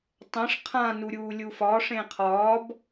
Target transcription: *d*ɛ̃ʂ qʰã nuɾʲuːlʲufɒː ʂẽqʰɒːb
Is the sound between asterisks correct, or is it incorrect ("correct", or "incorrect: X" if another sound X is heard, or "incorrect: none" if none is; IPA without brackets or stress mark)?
incorrect: tˤ